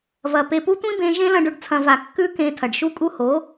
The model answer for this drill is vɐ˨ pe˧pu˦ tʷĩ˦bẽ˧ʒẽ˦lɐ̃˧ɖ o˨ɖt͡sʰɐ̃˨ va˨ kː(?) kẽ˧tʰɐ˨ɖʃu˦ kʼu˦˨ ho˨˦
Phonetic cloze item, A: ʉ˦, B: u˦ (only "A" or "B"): A